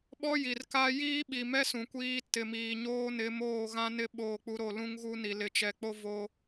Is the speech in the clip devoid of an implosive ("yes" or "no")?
no